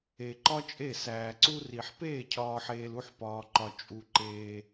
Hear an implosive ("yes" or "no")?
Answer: no